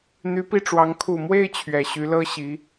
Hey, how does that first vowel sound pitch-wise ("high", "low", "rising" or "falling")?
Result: rising